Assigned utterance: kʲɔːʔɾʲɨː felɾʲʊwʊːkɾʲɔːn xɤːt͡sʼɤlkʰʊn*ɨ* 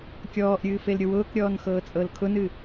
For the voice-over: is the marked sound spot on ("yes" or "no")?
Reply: yes